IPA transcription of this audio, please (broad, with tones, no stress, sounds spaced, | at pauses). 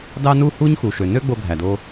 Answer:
d ɑ˥ n u˥ h u˥ ɲ x u˩ ʃ ø˩ n ø˥ ɡ͡b o˧ ɡʱ æ˩ d o˧